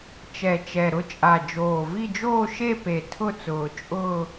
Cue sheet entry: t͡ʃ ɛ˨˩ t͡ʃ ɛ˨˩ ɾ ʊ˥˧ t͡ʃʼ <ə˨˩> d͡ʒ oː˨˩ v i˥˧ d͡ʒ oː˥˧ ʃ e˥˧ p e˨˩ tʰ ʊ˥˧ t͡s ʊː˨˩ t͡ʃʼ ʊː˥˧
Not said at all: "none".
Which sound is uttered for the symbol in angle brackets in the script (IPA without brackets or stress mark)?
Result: a˨˩